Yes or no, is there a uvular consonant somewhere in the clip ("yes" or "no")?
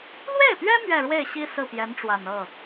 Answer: no